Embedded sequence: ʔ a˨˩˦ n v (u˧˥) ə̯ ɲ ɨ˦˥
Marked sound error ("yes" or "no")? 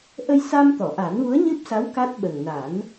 no